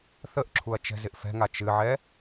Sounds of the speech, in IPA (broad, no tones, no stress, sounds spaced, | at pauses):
θ ə ʔ ǁʰ u ɐ̯ t͡ʃ ɛ̤ z ɪ ʔ f ɛ̤ ŋ a t͡ʃ ɨ ʕ ɛ